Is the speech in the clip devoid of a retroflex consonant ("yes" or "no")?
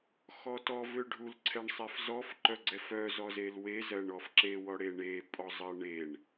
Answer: no